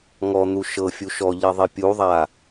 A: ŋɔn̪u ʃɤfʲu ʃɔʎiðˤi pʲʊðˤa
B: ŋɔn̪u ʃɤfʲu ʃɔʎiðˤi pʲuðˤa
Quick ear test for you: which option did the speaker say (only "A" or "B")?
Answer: B